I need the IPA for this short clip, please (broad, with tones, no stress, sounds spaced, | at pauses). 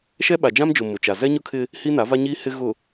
ʃ ɛ˦ ɓ a˨ d͡ʒ ã˦ m d͡ʒ ʊ˨ m ʊ˨ t͡ʃ a˨ z ɛ˦ ɲ ʊ˦ kʰ ɪ˦ | h i˦ n a˨˦ v a˦ ɲ iː˦ h ɪ˦ ɣ ʊ˨